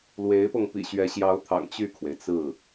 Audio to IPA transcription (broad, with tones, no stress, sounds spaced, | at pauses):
l w e˧˥ ɪ̯ p ɤ˧ ŋ p ḭ˨˩ ɕ ɥ ɛ˧˥ ɕ j ɑ˧˥ ʊ̯ t̪ʰ ɑ̰˨˩ ŋ t͡ɕ y˥˩ kʰ w e˩ ɪ̯ t͡s ɹ̩˥˩